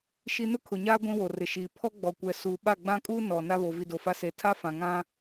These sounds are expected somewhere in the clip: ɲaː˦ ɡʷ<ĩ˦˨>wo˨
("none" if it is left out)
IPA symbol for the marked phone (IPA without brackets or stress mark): ĩ˦